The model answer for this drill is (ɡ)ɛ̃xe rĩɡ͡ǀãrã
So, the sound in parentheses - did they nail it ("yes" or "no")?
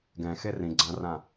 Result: yes